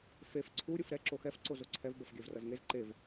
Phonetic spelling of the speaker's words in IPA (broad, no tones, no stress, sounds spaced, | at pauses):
f e f ǀʰ u ɾʲ ɯ f ɾ ɛ ǁ o x ɛ f ǀ o z o ǀʰ ɛ v b ʌ f ɡʲ ɛ v r ʌ z ŋ e z ǃ e v